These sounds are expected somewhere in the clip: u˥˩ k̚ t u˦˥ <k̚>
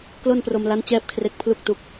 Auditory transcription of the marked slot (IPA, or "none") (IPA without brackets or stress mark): k̚